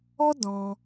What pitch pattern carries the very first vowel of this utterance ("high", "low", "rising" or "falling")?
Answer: high